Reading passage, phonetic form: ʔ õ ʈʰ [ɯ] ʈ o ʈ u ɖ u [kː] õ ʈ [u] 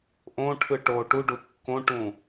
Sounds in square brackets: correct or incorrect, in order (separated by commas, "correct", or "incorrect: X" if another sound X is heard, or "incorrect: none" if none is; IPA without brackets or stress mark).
correct, correct, incorrect: ũ